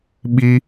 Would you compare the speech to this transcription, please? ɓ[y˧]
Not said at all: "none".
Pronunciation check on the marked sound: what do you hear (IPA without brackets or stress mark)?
i˧